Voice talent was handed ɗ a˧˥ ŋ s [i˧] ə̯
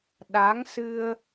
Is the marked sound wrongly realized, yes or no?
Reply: yes